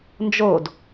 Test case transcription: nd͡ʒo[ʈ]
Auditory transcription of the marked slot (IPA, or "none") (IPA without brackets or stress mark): d